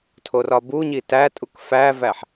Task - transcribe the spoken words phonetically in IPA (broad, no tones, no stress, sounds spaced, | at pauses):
tʰ o r ɒ b u ɲ i t æ tʼ u k f æ v æ ħ